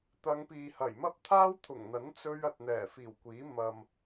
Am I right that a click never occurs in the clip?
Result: yes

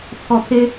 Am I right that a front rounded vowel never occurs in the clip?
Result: yes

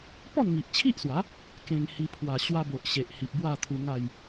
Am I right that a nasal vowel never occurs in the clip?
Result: no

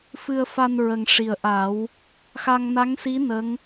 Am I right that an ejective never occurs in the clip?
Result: yes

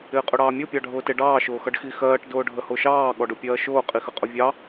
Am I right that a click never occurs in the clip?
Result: yes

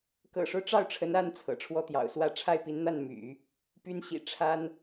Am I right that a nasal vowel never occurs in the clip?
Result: yes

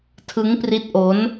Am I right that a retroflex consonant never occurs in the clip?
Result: yes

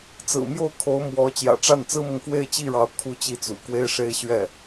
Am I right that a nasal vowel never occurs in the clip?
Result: yes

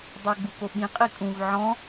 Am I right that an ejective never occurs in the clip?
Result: no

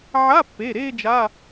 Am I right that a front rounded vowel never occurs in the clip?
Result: yes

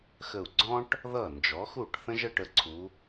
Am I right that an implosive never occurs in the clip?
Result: yes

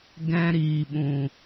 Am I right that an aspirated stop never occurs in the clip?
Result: yes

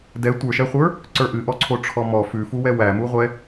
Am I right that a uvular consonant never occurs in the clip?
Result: no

